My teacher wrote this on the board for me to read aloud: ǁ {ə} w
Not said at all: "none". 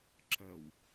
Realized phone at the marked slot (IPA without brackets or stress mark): ə